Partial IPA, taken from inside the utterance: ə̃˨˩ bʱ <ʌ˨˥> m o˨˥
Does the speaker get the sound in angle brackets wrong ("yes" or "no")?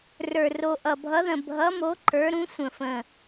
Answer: no